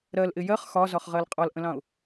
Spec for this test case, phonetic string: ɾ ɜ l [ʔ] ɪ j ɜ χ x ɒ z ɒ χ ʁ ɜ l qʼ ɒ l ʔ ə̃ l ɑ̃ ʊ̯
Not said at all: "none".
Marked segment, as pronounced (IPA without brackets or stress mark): ʔ